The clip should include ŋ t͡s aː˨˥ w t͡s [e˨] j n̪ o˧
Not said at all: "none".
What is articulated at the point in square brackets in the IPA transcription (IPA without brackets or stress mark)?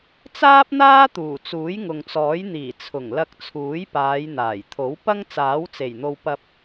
e˨˩